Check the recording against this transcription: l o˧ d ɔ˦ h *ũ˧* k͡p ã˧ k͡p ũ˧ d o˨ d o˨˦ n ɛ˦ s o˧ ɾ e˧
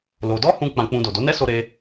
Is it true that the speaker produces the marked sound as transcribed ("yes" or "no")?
yes